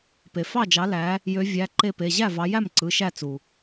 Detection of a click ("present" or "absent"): present